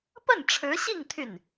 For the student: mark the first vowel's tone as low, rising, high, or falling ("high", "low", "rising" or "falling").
falling